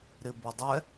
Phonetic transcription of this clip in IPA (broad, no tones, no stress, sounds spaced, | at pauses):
ɾ ɪ b o dˤ ɛ